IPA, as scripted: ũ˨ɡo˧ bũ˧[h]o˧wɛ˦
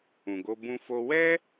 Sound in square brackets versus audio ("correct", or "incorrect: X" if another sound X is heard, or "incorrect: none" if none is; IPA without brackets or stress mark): incorrect: f